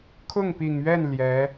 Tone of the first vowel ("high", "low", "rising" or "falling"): falling